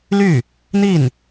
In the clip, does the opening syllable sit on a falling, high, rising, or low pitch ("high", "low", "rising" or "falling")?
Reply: falling